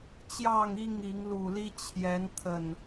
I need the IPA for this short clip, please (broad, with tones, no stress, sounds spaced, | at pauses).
t͡ɕ j ɑ˥˨ ŋ i˥˨ ŋ i˨˦ ŋ l u˨˩ l i˦ t͡ɕʰ j ɛ˨˦ n t̪ʰ ə˨˩ n